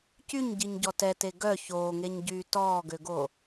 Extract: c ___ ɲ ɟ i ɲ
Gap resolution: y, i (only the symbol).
y